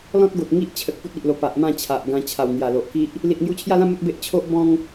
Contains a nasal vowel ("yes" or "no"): yes